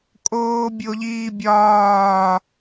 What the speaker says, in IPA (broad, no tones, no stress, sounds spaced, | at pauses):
kʼ oː bʲ o ʎ iː bʲ ɒː